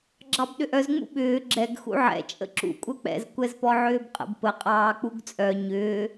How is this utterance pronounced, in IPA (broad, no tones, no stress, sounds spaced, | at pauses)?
ɡ͡ǁ ɑ b ɗ ʏ ʔ œ z ŋ͡m ṵ ɓ ʏː ɡ͡ǁ ɛ ɡ x ṵ ʕ ɛ̰ t͡ʃʼ ə̰ ǁ ṵ kʷʼ œ k͡p ɛ̰ z kʷ ɛ z p ɔ ʕ ʏː b qʼ ə̰ b p ə qʼ ɑː k͡p u ɡ t͡sʼ œ ɲ ʏː